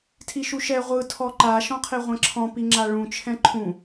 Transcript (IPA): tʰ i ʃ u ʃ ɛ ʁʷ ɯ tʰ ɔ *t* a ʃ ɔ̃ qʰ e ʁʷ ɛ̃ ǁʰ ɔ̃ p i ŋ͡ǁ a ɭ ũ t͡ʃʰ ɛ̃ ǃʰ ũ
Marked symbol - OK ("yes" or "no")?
no